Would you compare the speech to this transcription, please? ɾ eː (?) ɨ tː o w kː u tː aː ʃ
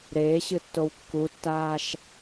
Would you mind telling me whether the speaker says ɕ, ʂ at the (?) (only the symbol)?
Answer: ɕ